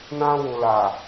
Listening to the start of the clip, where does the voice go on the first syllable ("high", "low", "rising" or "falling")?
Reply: high